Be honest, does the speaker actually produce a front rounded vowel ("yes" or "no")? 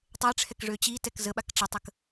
yes